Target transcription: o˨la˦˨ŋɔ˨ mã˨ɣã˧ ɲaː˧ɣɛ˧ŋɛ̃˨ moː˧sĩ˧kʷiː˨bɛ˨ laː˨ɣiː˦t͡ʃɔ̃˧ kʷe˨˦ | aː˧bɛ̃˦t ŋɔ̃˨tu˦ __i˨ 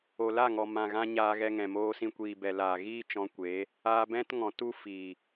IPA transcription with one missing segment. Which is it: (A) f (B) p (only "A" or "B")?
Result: A